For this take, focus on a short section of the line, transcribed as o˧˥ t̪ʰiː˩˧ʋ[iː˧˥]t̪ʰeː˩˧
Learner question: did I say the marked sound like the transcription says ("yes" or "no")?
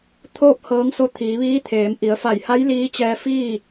yes